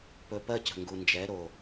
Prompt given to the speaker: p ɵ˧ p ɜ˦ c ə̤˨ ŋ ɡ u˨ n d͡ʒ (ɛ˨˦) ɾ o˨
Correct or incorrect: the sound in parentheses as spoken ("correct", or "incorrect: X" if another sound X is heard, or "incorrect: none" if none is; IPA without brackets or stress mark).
correct